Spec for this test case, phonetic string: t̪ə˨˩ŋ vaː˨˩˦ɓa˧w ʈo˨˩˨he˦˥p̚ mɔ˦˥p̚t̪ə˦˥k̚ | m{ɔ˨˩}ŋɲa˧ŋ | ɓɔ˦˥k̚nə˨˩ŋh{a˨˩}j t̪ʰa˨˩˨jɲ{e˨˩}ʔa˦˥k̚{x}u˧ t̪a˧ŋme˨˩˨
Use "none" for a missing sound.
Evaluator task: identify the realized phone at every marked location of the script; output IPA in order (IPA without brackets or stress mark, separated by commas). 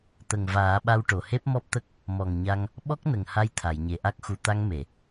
ɔ˨˩, a˧, e˨˩, x